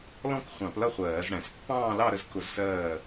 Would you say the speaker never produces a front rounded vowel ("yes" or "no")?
yes